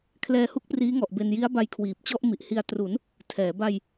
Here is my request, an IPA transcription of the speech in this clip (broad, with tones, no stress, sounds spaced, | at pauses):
kʰ l ɛː˧ h u˥˩ k̚ p r iː˦˥ ŋ ɔ˨˩ ʔ b e˧ n j i˦˥ a̯ b a˧ j kʰ w iː˨˩ p̚ t͡ɕ ɔ˥˩ ʔ m i˨˩ ʔ h i˧ a̯ t r u˩˦ n | tʰ ɛː˩˦ b a˧ j